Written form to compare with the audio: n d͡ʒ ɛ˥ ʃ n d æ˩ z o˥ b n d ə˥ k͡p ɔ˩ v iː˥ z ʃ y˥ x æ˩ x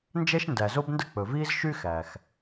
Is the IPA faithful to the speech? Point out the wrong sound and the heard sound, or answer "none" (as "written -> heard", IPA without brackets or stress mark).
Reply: ɔ˩ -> ɵ˩